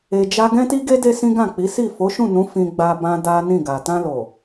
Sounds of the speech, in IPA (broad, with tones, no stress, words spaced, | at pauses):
e˨d͡ʒa˧ ɡɛ̃˦ti˦ɡe˦ de˦sĩ˦ɡã˦˨k͡pi˨˦ si˦˨ fo˨˦ʃũ˦˨nũ˨˦ fĩ˧ɡ͡ba˧ bã˦da˦nĩ˦˨ɡa˨ tã˧lo˨